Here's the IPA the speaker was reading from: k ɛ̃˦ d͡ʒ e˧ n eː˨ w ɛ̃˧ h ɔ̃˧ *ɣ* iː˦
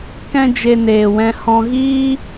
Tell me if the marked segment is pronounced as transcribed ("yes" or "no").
yes